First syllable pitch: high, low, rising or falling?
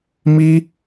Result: high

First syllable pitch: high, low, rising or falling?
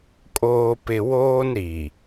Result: low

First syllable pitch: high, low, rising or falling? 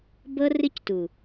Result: high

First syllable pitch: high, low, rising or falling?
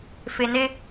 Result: low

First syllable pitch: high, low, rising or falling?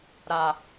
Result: low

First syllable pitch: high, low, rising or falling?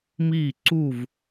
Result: falling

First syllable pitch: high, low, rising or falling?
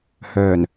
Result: low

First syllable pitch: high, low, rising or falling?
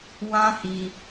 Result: high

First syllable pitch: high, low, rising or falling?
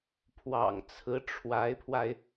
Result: low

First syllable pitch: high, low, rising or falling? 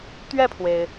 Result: falling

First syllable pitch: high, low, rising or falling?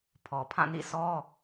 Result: low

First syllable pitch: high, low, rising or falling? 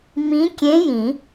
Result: rising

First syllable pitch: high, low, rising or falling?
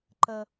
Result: high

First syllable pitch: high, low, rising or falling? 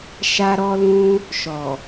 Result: high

